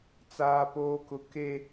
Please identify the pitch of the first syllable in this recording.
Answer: high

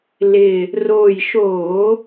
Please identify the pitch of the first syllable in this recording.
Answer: low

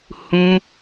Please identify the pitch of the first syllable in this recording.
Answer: high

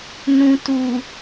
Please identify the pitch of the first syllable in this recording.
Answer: low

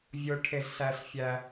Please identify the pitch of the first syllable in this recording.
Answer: high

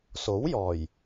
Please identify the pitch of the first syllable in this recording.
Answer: rising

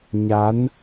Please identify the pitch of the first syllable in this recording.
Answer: rising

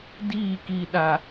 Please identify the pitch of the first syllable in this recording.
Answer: falling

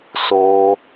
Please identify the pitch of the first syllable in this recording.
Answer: high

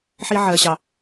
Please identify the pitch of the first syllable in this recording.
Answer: high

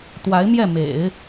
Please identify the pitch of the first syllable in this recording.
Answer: rising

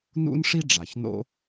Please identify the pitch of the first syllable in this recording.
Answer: high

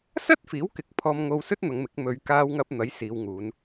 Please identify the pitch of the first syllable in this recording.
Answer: high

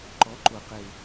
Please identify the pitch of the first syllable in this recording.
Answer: rising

